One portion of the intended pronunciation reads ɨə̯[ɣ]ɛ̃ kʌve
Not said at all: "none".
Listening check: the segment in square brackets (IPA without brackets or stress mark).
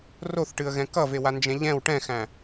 ɣ